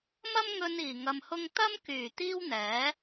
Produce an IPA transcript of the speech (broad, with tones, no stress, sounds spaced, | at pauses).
m ɐ˥ m ŋ ɵ˧ n iː˨˩ ŋ ɐ˧ m h ʊ˥ ŋ t̪ ɐ˥ m k yː˨˩ t̪ iː˥ w n̪ ɛː˨˥